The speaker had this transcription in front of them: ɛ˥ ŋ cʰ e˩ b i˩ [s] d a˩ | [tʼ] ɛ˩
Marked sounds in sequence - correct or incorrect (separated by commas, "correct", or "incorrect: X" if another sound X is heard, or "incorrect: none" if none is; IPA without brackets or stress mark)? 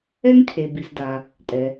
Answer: correct, correct